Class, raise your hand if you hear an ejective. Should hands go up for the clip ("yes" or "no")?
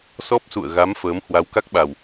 no